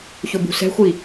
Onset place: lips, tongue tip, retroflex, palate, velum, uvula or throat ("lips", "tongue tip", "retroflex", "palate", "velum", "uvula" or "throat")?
palate